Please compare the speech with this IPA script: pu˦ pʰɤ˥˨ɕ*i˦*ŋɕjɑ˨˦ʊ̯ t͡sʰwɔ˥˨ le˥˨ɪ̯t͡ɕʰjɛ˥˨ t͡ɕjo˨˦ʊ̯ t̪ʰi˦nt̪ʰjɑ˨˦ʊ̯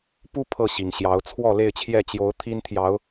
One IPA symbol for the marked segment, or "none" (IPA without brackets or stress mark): i˨˩